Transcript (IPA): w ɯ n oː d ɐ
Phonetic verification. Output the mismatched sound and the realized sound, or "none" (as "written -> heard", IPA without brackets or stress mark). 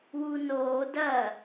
ɯ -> u